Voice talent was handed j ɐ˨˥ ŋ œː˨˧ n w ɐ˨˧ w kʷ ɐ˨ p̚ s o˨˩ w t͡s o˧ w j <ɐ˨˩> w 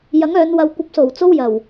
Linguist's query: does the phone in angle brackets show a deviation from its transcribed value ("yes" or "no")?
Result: no